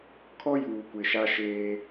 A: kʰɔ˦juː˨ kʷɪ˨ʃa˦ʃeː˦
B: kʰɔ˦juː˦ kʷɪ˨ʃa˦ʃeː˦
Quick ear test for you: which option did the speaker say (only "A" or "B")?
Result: A